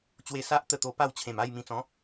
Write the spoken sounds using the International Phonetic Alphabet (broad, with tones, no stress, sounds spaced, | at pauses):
t͡ɕ w e˧ s a˦ ʔ t̪ ə˥˧ t̪ o˧ p a˥˧ w t͡ɕʰ ẽ˨˩ m a˥˧ j m ĩ˧ t͡s ɔ̃˨˦